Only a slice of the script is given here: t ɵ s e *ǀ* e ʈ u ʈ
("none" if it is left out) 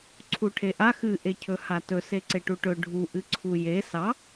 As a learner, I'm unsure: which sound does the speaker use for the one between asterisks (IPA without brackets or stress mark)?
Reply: ǀ